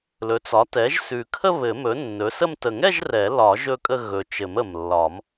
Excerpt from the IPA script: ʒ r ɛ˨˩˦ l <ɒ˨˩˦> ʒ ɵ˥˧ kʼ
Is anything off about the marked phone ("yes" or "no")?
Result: no